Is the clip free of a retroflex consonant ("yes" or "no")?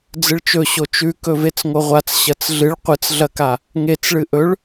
no